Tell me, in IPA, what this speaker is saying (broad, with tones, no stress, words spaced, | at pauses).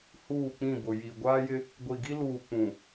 huː˦˨k͡pĩ˦˨bʊ˨ ji˨ ɡʷaː˦jɪ˦ | ɡʷi˨ɡi˦ luː˨ k͡pũ˨